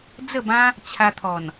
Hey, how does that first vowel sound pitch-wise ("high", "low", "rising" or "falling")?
falling